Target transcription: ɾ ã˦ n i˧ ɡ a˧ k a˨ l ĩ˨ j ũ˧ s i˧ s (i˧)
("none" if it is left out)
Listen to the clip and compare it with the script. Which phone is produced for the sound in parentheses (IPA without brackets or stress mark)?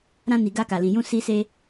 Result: e˧